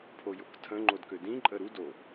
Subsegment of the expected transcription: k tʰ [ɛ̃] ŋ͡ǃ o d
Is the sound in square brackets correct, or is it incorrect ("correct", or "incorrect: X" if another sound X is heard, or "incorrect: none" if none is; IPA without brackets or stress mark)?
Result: incorrect: ə̃